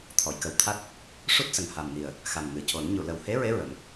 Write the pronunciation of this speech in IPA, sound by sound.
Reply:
t̪ʰɔ˨˩˨jkə˨˩wt̪ʰa˦˥t̚ | ʂu˦˥t̚sə˨˩ŋ ha˨˩mni˨˩ə̯ | xa˨˩mŋɨ˨˩co˨˩˦n ɲu˨˩˨lə˨˩whe˧˥ɹe˧˥ ɹə˨˩˦m

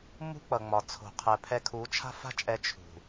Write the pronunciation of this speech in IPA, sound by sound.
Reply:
mṳ˦k͡pʌ˨ŋ͡mɒ˨t͡sʰo̤˨ qʰɛ˨pʰɛ˧kʰu˨˦t͡ʃʰa̤˦ fa̤˦t͡ʃʼɛ˧ t͡ʃʰṳ˨

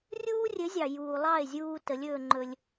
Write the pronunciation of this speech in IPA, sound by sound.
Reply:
rʲuː˦rʲɘ˨˦zʲɑ˨ juː˨lˠɑ˦˨e̯zʲuː˧ tə˨˦lʲɵː˧ ŋ͡ǃɵ˧lʲ

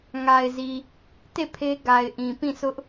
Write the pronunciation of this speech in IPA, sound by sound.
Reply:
ŋa˨ɪ̯zi˨ | te˦˨ pʰe˦ ɡa˨ɪ̯ʔĩ˨pĩ˦˨ sʊ˦ʔ

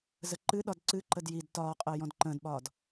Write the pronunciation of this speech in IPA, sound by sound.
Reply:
zəǃɨɗɒd ǀɨǃəd jid tɒːqʼəː jɔ̃dǃə̃ːdɓɒːd

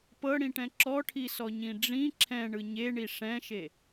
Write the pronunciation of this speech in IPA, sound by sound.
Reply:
pɤɽĩʈɛ̃ ǁɔʈʰisɔɲĩ ɖ͡ʐĩ ǁʰɛ̃ɳɯ ɲeɳi ʂɛ̃ʃe

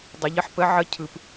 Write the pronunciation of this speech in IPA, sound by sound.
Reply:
dˤə˨ʎə˨˥ħpə˨˥ ʕə˨˥ cʰɯ˨p

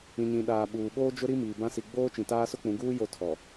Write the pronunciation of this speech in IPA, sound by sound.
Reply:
ĩ˨ɲĩ˨ ɗaː˨ ɓuː˨ ɓoː˦d͡ʒʊ˦ɾi˦ miː˨bã˦ si˨ɡ͡boː˦t͡ʃĩ˨taː˦ sʊ˦k͡pũ˨˦ɡuː˦ jo˦tʰɔ˨

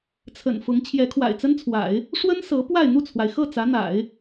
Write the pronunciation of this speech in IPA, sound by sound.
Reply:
t͡sʰə̰˨˩nfʊ˧˥ŋ t͡ɕʰjɛ˧˥kʰwa̰˨˩ɪ̯t͡sə˥nt͡sʰwa̰˨˩˦ɪ̯ | ʂwə˥n sɤ˧˥pwa˥˧ɪ̯ n̪u˥˩t͡sʰwa˩ɪ̯xɤ˥˩ t͡sä˧˥n̪a̰˨˩˦ɪ̯

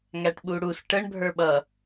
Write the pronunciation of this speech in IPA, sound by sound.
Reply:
ŋæʈɓuɽus ʈəɳ bʱə˞ɓʌ

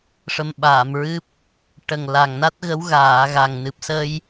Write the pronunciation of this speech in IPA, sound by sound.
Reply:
ʂə˧mɓaː˨˩˨mɹɨ˦˥p̚ | ʈə˨˩ŋ la˨˩ŋna˦˥t̚ɣə˧˥w ɣaː˨˩˨ ɣa˨˩ŋnɨ˨˩p̚sə˧j

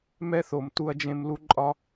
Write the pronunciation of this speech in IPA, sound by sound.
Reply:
mɛ˥θo˩mtu˧ɐ̯d͡ʒẽ˧m lu˧ǃʼɒ˧

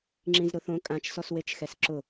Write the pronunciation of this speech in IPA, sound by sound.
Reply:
ŋ͡ǁĩzɾʊθõ kʼãt͡ʃsɔswet͡ʃxɛs ǁʊ

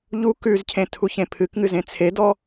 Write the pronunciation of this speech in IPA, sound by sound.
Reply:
ʎu kʉzcʰẽ tʰuçẽpʰɨkŋɨ zẽt͡sʰedɔ

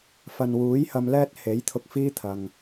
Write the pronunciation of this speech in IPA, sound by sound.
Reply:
fɐ˨nwuː˨˥jhɐ˧m lɛː˥t̚ he˨˥jt̪ʰʊ˧k̚ fiː˥t̪ʰɐ˨ŋ

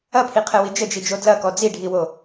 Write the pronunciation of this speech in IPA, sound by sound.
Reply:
ɐpʰiqʰɛwi d͡ʒəd͡ʒid͡ʒo dlɐkɔ d͡ziɖʱiwo

